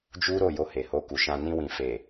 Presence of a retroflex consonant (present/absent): absent